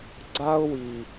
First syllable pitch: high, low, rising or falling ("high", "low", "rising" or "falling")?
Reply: high